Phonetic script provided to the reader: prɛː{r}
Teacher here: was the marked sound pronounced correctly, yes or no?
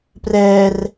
yes